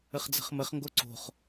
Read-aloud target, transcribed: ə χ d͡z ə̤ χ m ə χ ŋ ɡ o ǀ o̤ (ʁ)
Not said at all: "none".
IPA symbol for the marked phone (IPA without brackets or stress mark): χ